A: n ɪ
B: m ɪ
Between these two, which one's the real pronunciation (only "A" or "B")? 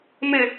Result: B